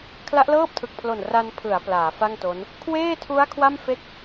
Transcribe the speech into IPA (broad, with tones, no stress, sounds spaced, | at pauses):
kʰ l a˦˥ ʔ l ɤː˥˩ p̚ tʰ ɯ˨˩ k̚ pʰ l o˨˩ n r a˧ n pʰ ɯ˩˦ a̯ p l aː˩˦ f a˥˩ ŋ t o˦˥ n | kʰ w eː˥˩ tʰ u˦˥ a̯ kʰ w a˥˩ m f e˥˩ k̚